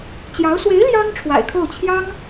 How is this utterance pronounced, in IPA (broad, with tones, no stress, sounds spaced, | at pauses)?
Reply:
t͡ɕ j ɑ˧˥ ʊ̯ s w e˧˥ ɪ̯ l j ɑ˥ ŋ ʈ͡ʂʰ w a̰˨˩ ɪ̯ kʰ o˥˩ ʊ̯ t͡ɕʰ j ɑ˥ ŋ